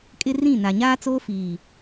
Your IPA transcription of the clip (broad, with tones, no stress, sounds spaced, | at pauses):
kʼ ɪ˦ r ĩ˦˨ n a˨ ɲ aː˦ t͡s oː˦ f iː˨